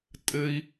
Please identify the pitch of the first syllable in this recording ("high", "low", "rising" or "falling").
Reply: high